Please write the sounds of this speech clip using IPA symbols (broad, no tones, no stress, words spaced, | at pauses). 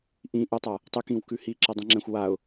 ʔĩ ʔytˤa | tˤɨkĩw kʉhi ǁɛdˤĩŋ͡ǁɛ̃xʷwaʊ̯